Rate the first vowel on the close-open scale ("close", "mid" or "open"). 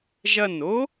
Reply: open